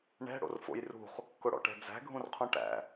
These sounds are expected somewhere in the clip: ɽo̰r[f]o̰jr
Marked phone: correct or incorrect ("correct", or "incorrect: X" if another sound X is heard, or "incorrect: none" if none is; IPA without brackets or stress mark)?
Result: correct